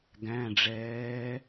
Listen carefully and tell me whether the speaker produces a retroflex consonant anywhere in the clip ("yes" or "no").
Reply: yes